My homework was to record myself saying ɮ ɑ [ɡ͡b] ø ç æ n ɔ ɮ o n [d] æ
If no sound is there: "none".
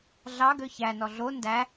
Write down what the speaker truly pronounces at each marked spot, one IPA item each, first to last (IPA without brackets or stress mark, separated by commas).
ɡ, d